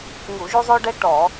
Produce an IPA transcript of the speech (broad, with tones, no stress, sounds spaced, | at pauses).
ŋ u˧˩˧ ʒ u˦ zˤ o˦ ɖ ɛ˦ ʈ ɔ˧˩˧